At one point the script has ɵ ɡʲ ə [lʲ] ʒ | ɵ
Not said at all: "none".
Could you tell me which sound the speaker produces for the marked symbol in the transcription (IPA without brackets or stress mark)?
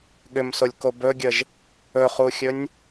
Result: none